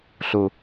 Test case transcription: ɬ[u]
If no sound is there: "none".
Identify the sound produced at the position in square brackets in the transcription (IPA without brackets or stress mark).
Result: u